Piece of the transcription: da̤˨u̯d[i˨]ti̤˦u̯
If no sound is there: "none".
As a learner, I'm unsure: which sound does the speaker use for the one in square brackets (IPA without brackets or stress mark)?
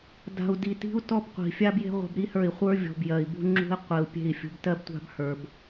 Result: i˨